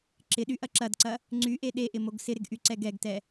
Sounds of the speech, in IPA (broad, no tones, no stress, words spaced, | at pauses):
ǁɪɗy ʔɐǁɐdǀɐ | ŋ͡ǀyʔe ɗeʔɪ moɡsɪɾɪɡ ʔyǀɛɡɛɡtɛ